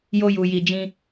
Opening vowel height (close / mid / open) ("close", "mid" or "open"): mid